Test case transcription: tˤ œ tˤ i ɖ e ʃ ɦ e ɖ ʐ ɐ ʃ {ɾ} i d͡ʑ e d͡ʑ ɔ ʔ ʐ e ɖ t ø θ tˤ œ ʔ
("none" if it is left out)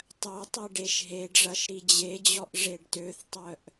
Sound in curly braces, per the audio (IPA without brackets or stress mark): ɾ